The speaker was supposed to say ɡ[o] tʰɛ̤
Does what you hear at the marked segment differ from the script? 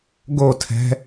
no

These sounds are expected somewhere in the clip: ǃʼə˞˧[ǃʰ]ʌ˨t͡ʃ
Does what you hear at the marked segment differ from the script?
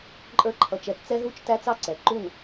no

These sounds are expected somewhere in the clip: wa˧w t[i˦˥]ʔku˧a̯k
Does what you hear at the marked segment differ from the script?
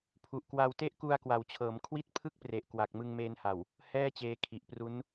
yes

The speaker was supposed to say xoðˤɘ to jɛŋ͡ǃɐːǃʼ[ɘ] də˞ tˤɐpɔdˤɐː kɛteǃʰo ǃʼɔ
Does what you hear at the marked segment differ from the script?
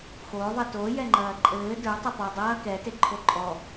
yes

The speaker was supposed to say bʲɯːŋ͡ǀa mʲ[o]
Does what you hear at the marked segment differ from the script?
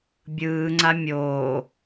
yes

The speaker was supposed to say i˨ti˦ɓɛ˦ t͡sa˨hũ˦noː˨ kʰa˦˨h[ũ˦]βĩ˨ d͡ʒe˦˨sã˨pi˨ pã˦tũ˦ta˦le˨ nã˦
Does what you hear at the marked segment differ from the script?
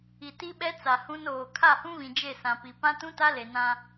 no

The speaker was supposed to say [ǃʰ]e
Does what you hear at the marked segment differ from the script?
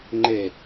yes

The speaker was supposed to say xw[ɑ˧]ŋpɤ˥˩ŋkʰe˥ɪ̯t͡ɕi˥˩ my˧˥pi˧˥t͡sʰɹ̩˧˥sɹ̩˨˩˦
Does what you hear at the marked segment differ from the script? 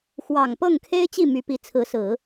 yes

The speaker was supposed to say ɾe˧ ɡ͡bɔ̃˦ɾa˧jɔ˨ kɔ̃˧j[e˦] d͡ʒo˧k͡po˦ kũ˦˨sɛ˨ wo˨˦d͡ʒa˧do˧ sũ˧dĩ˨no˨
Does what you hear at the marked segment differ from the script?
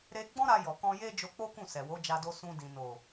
no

